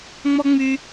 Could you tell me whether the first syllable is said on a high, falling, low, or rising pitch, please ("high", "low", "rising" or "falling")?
high